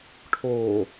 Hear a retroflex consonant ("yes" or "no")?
yes